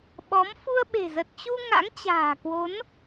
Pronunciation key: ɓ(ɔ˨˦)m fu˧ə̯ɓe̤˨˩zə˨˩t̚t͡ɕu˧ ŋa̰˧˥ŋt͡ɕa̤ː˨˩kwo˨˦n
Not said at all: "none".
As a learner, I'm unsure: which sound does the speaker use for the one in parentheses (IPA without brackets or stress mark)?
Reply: ɔ˨˦